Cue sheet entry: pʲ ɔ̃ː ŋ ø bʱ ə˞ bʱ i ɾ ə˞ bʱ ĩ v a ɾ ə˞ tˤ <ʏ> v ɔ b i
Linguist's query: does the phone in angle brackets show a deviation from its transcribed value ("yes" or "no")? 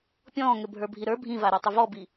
no